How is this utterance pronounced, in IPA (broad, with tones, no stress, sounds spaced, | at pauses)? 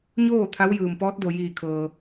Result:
ɲ oː˥˨ t̪ʰ a˧˥ w j ɯː˩ m p ɔː˧˥ t̚ d o˩ j iː˧˩ kʰ ɤː˩